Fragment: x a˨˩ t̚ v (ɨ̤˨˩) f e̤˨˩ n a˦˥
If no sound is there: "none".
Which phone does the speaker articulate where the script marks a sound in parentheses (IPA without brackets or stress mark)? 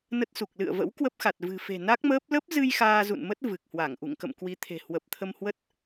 ɨ̤˨˩